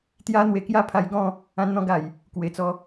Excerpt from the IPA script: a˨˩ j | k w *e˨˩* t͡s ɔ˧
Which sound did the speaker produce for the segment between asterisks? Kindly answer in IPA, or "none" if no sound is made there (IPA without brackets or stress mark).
e˨˩